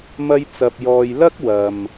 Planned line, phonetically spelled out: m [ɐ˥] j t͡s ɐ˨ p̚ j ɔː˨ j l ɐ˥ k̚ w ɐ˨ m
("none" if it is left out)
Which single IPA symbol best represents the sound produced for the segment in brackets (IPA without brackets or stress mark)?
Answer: ɐ˧